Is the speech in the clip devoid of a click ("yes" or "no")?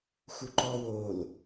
no